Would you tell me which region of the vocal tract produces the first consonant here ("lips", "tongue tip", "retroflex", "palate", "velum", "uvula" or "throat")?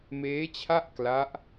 lips